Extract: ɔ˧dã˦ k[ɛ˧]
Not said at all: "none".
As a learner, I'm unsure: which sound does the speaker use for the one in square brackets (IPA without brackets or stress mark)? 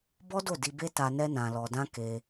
e˧